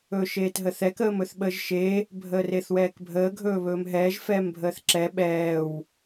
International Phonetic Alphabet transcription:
ɵːʃeːtɦəθɛk əːmɵθɓəːʒʃe | bʱəːreθwɛːkbʱəː ɡʱɵːβɵːmɦɛːʒ fɛːmbʱəːθǁɛ ɓɛːw

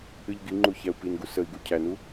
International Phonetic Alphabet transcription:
ɨʎɡiŋ͡ǃu çæu̯pinɡu səi̯ɡu cʰænu

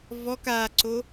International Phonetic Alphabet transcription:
vɔk aǀo

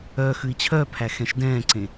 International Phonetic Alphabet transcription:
œ xʉi̯t͡ɕʰœpʰæ xɛ̃ʃdɛ̃ːǀẽ

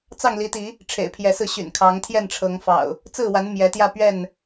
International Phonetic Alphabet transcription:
t͡sɑ˥˨ŋli˨˦t̪i˨˦ | ʈ͡ʂʰḛ˨˩ɪ̯pʰjɛ˨˦sɹ̩˧ ɕy̰˨˩nkʰɑ˨˦ŋt̪ʰjɛ˥˨n ʈ͡ʂʰɤ˨˦ŋfɑ̰˨˩ʊ̯ | t͡sɹ̩˥˨wa˨˦n mjɛ˨˦t̪jä˥˨ pɥɛ˥˨n

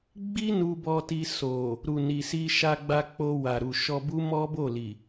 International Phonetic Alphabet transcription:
ɡ͡bi˦ nu˧bɔ˧ ti˧ so˨ | ɾu˨ni˨si˧ʃa˧ ɡ͡ba˧k͡po˧ wa˨ɾu˨ʃɔ˧bu˦ mɔ˦bo˦˨li˨

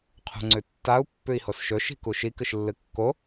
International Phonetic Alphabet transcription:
qʰṳŋ͡ǀʉtːau̯ pːʉi̯hosʃɵ ʃi̤kuʃi kɨʃlːɨkːo

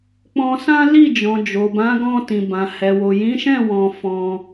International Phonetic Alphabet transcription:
k͡pɔ̃˧sã˦ li˦˨d͡ʒɔ̃˨ d͡ʒo˨bã˨˦ɡɔ̃˧ tĩ˨bã˨ hɛ˨wo˨ jĩ˨˦ʃɛ̃˦˨ wɔ̃˧fɔ̃˧

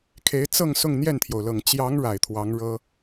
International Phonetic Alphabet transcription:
kʰe˧˥ɪ̯t͡sɤ˥˧ŋ sʊ˥˧ŋn̪jɛ˥˩nt̪ʰjo˩ʊ̯lɤ˨˩ŋ t͡ɕjɑ˧˥ŋ ɻa˨˩ɪ̯t̪ʰwɑ˧˥ŋ ɻɤ˥

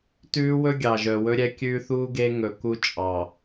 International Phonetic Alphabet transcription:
tʉː˦wɵ˦ ɡʲɑ˨ʒœ˨wɵ˦ɾʲɛ˦ kʲʉː˦θuː˦ɡe˦ ŋɵ˨ku˦t͡ʃʼɑː˨

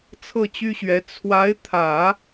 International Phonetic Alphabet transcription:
t͡sʰɤ˥˩t͡ɕy˥ɕɥɛ˧˥ t͡sʰwa˧˥ɪ̯t̪ʰä˨˩˦

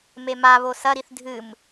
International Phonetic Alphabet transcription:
memaβo sɐɾiθ dʱɨm

